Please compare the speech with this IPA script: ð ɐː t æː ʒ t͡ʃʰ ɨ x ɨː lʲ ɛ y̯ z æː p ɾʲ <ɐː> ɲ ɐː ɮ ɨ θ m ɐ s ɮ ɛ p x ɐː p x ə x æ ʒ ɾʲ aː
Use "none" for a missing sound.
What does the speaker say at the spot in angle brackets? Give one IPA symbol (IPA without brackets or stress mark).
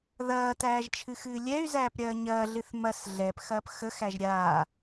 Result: ɐː